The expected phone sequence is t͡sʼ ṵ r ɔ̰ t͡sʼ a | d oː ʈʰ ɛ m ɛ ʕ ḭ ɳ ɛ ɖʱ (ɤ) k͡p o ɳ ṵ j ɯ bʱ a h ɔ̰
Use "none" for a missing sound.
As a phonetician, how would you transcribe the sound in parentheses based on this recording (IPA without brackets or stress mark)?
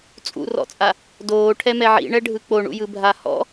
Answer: ɯ